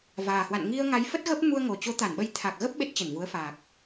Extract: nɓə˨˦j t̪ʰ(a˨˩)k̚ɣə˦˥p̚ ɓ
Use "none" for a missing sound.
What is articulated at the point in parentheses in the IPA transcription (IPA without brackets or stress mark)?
a˨˩